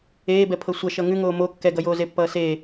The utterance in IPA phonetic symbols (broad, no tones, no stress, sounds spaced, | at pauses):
eː b ɛ pʰ ɤ sʷ ʌ ʃ ʌ ŋ ʉ ŋ oː m o kː ɛ ɡ ʌ j oː z e pː ʌː s eː